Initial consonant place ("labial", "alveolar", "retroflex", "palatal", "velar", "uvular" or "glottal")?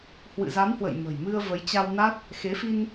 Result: glottal